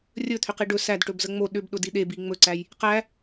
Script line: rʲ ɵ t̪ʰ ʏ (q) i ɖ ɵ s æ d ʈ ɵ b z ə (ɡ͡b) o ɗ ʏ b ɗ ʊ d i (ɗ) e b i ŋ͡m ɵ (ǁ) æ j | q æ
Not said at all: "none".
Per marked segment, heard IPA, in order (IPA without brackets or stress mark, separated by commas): q, ŋ͡m, ɗ, ǀ